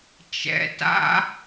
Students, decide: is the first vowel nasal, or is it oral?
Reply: oral